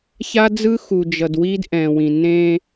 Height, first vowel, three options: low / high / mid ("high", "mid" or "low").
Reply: low